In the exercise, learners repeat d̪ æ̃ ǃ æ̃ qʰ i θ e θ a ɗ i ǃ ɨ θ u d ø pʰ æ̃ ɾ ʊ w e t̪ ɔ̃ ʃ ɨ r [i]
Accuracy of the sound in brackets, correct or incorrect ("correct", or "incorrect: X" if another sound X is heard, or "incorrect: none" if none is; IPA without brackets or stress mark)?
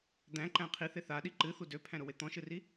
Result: correct